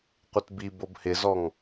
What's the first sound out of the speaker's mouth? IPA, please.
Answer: qʷ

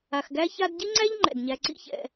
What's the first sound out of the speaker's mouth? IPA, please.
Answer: a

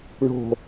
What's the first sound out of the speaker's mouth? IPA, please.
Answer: ɳ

